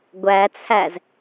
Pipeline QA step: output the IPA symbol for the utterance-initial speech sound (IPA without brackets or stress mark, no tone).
ɡʷ